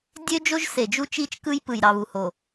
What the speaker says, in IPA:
dʲø˦d͡ʒo˦ʒ se˨ d͡ʒu˦t͡ʃi˦˨t͡ʃkɯ˦j pɯ˨jɾɑ˨βu˨ ho˨

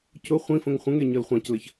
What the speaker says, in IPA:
cʊ χʷĩfə̃ŋ χʷə̃ŋe ɲɤlχʷɑ̃cləç

